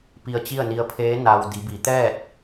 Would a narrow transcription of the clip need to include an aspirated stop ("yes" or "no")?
yes